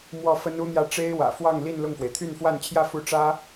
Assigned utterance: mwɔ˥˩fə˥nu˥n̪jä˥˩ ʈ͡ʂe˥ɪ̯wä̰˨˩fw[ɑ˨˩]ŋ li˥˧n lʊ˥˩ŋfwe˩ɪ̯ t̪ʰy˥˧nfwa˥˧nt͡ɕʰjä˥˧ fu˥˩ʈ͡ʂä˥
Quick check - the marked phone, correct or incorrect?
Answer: incorrect